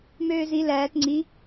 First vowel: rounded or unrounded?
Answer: rounded